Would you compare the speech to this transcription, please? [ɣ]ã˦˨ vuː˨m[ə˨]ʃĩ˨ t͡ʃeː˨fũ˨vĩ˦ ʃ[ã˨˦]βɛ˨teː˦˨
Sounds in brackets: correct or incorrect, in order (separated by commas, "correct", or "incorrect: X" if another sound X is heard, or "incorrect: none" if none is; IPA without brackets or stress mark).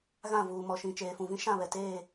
correct, incorrect: ɔ˨, incorrect: ã˦˨